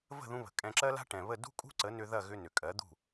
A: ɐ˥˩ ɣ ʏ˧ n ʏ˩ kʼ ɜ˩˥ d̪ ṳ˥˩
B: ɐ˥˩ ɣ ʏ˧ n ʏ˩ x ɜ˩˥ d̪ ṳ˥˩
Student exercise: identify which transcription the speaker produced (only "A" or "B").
A